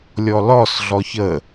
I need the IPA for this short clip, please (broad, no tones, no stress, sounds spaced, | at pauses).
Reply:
lʲ ɔ l ɔ s ɮ ɔ ç ə